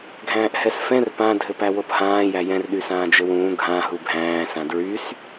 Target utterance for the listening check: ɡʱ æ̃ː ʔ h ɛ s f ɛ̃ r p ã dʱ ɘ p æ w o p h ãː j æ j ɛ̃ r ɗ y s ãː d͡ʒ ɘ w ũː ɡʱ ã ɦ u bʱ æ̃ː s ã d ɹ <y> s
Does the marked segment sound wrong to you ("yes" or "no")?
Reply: no